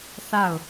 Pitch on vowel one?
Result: falling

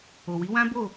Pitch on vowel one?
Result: low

